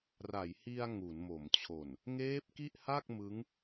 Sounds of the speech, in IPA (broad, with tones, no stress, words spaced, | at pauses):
ra˩˦jhi˧a̯ ŋu˩˦nmo˩˦mt͡ɕʰo˨˩n | ŋeː˦˥p̚ki˥˩ʔha˥˩k̚ mɯ˦˥ŋ